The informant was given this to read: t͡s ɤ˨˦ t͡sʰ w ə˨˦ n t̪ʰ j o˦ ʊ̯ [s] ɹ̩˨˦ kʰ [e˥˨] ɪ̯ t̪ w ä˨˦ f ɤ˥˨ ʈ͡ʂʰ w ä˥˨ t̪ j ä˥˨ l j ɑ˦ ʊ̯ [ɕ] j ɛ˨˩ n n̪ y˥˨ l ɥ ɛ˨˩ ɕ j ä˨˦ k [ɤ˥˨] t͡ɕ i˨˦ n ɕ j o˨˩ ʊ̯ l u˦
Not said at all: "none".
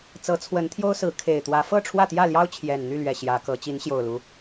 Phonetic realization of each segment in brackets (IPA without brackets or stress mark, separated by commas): s, e˨˩, t͡ɕʰ, ɤ˨˦